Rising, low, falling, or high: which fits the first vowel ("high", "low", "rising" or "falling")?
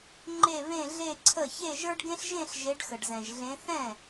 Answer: falling